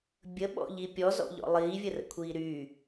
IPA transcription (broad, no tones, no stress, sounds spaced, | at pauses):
bʲ ə ɓ ɔ̰ ʎ i pʲ ɔ z ɔ̰ ʎ ɔ̰ lˠ iː vʲ ə r ə̰ kʷʰ iː ɾ yː